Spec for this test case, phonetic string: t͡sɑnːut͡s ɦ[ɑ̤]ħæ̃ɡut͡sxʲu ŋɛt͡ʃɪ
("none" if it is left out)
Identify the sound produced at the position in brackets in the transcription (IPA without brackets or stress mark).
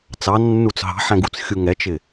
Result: ɑ̤